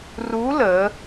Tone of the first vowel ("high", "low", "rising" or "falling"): rising